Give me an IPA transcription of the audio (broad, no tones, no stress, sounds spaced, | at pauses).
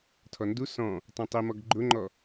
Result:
tʰ ɔ n d u s ɔ̃ | tˤ ũ tˤ i m ɔ ɡ ɡ͡ǃ ʊ ŋ͡ǃ ɔ